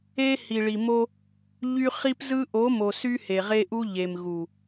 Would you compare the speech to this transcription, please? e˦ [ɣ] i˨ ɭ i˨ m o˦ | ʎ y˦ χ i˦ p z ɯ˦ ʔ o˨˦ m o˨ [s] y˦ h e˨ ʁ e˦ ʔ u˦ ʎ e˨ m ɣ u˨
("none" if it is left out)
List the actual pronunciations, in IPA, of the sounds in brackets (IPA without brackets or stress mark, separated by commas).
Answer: h, s